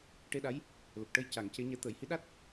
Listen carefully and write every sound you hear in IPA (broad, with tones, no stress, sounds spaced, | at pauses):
ʈ e˧ ɗ a˧˥ j | l ə˨˩ k̚ ʈ ə˧ j c a˨˩˦ ŋ c e˧˥ ɲ ɛ˧ t̪ əː˨˩˨ j h i˧˥ ɗ a˦˥ t̚